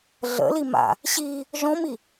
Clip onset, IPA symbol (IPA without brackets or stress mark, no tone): ɮ